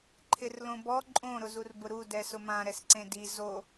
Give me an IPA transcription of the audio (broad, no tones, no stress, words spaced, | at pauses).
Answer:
ǃʰɪrlõbɔ ǃʼõ ɾʊzurbʊɾu dɛsʊmã ɾɛsǀẽdi zo